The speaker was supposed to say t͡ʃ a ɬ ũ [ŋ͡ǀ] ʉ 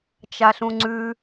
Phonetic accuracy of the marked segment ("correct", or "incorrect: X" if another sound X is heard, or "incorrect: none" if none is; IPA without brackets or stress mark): correct